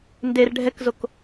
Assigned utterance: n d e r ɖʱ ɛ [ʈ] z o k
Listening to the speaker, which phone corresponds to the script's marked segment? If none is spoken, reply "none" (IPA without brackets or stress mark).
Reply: k